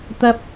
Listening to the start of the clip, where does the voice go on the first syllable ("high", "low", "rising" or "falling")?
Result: high